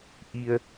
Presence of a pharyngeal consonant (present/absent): absent